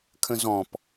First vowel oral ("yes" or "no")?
no